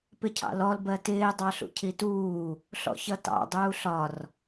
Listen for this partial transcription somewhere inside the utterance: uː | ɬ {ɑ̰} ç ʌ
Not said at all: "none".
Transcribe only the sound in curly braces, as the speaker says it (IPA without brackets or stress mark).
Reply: ɔ̰